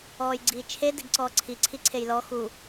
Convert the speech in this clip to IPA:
ɔːjɡ͡ǀiːt͡ʃʰe deɡǀɔːǀʰi ǀʰiǀʰejlɔ xu

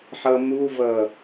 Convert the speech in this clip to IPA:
ħʌmuvʌ

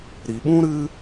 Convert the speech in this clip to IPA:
ɾi˨ɓũ˦ ɾɨ˦

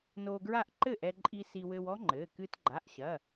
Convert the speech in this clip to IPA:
noː˧ɡɹa˥˩ʔ ǃɘ˥˩ʔɛ˧ǃʼi˧ si˧wɘ˧wɔ˦˥ŋ͡ǃɘː˩˧˩ kɨː˧tɡ͡ǃa˩˧˩ʔɕɐ˩˧˩

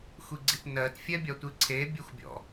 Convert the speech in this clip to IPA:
xʷiɡ͡ǀitnɜt fʲɛbʲɒtʷiǀʰe bʲexʷbʲɔ̰

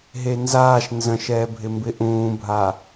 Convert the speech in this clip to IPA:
ɦenzaːʃ nzə̃ʃɛːbʱɪ mbɪʔũːbʱa

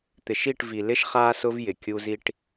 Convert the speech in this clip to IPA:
t̪ɪ˨ʃi˦˨ʈvi˨ lɪ˦ʃ χaː˦sʊ˦v jɪ˨ kʲu˦zi˦ʈ

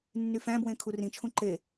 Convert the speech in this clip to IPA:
nːyfæ̃bwẽ kʰurĩt͡ʃʰũ ǃe

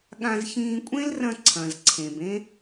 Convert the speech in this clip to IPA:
ɠã˧zçĩː˧kʷʼẽ˦lrɐ̃˧ ǀʰɐ̃˨zǀʰẽ˨b ẽ˦

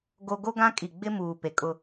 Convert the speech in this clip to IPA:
ɡo˦ ɡo˦ɡã˦kʼi˨ ɡ͡bɪ˦muː˨pe˨ kʼʊ˦

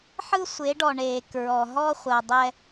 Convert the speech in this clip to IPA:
ħɯ˦sʷe˨˦ɖɔ˨ ɳe˨kɹɔ˨ ɦɔ˦χʷɜ˨dˤɛ˦

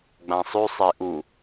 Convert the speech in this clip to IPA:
ɡ͡bãsˤʉ sˤeʔu

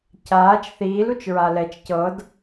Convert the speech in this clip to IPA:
caːt͡ʃ θiːlut͡ʃ ɹalɛt͡ʃ cɤd

